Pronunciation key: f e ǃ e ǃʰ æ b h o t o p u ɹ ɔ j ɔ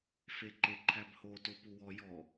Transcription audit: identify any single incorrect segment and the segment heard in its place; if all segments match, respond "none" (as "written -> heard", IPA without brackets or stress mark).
ɹ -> w